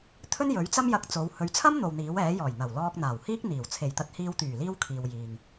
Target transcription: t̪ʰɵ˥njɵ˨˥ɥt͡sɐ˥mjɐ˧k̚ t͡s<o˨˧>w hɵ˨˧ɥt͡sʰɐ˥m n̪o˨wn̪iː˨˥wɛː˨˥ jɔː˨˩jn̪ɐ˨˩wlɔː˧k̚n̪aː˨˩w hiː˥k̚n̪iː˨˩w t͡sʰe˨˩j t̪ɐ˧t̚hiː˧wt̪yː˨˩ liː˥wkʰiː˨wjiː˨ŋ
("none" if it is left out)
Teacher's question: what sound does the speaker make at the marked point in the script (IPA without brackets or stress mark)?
o˨˧